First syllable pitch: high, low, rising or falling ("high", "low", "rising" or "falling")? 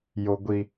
high